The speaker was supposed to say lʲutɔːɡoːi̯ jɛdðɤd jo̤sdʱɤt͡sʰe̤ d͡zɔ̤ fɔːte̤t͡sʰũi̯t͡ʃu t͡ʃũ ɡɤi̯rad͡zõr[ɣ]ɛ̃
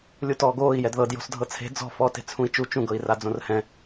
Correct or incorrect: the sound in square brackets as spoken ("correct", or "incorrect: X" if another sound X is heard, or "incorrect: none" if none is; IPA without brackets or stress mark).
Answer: incorrect: h